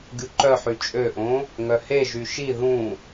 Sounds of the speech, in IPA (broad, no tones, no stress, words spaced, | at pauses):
ɡʲuǃœħy t͡ʃʼøʔõ | ŋœheʒy ʃi ðũ